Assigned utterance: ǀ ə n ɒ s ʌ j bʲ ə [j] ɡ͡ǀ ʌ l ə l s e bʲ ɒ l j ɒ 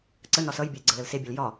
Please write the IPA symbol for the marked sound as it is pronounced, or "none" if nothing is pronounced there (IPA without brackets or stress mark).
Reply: j